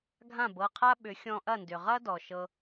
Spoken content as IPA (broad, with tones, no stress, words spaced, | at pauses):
ɡʱã˥˩bɤ˥˩qʰa˥ɓʏ˩˥ xʲɔ̃˧ʔɐ˥˩ndʏ˩ ʁɐ˥dɔ˩ ʃɤ˧